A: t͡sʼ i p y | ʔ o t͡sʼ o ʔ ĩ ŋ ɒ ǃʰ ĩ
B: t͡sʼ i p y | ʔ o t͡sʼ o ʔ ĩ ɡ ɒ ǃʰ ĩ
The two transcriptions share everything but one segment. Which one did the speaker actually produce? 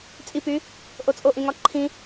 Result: A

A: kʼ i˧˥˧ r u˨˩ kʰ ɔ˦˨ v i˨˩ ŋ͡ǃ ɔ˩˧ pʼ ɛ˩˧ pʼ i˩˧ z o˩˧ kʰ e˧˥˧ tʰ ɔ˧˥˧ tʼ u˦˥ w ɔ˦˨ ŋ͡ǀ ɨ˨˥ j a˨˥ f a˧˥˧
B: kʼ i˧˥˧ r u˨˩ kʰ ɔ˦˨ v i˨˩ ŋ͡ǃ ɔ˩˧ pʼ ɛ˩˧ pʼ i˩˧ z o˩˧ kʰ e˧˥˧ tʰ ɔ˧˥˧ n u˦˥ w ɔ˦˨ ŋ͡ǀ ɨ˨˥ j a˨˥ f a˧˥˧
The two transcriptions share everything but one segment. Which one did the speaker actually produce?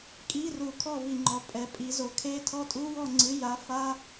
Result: A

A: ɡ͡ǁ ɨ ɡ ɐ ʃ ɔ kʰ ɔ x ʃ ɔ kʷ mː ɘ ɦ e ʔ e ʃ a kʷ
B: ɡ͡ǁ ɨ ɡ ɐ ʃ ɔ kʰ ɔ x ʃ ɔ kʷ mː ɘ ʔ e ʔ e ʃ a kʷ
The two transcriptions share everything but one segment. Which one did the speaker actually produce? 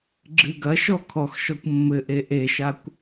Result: B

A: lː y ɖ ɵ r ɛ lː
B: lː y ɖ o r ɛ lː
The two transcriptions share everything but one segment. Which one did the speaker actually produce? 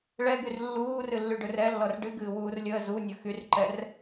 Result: A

